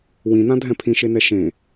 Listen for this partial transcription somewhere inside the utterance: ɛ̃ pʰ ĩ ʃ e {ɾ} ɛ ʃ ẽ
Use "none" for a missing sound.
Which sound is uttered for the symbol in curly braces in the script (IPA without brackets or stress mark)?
n